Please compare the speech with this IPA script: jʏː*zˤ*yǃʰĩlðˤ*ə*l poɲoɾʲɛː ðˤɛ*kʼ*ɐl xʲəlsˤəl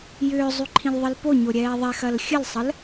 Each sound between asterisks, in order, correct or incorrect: correct, correct, incorrect: x

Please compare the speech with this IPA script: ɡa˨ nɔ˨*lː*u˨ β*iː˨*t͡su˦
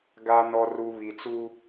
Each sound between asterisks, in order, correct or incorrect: incorrect: r, incorrect: i˨

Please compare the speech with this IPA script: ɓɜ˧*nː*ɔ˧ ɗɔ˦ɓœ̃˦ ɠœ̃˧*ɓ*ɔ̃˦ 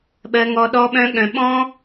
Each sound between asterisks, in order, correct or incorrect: incorrect: ŋ, correct

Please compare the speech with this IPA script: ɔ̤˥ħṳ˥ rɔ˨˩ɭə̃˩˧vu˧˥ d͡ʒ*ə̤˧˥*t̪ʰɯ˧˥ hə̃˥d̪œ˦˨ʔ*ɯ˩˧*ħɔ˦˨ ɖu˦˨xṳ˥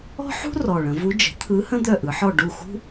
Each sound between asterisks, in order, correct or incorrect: incorrect: ə̤˩˥, correct

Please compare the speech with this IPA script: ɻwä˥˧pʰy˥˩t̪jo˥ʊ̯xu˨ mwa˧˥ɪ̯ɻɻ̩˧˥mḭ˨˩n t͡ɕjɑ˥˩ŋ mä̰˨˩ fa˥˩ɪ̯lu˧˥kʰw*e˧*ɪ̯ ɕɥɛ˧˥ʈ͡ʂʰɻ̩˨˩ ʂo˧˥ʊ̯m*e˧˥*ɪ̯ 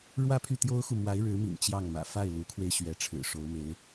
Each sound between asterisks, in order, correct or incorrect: correct, correct

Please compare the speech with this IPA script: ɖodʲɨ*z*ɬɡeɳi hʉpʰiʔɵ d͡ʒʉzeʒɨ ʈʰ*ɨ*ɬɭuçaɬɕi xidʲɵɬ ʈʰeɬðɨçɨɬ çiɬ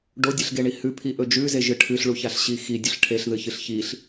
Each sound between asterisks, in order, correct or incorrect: incorrect: none, correct

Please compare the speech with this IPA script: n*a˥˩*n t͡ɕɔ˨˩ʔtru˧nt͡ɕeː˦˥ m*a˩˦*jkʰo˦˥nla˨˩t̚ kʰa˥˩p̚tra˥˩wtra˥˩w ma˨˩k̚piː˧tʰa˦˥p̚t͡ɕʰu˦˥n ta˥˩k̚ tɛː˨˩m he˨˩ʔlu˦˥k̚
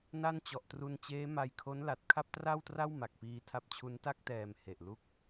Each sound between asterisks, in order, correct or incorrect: correct, incorrect: a˧

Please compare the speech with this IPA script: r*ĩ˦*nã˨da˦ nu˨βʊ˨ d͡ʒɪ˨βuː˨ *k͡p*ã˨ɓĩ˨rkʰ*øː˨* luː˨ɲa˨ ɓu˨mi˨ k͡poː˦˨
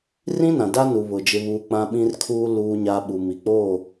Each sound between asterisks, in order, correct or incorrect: correct, correct, incorrect: uː˨

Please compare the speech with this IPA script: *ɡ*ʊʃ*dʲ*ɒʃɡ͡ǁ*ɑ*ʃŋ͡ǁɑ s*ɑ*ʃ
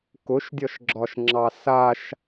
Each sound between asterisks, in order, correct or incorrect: incorrect: k, correct, incorrect: ɒ, incorrect: a

